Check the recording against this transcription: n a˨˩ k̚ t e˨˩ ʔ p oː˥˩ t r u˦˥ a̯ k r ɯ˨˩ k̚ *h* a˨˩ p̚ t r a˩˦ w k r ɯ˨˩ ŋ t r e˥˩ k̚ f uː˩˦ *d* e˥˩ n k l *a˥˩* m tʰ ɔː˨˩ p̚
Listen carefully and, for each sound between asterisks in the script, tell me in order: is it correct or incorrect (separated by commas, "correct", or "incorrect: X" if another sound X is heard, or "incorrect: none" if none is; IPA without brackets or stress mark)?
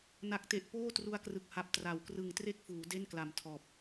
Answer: correct, correct, incorrect: a˨˩